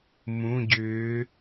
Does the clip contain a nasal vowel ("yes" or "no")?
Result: yes